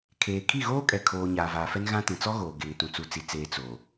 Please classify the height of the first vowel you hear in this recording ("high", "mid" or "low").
mid